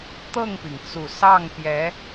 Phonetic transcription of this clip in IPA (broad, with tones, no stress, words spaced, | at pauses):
t̪ɤ˥˩ŋpi˩ŋt͡su˨˩ sɑ˥˩ŋpjɛ˧˥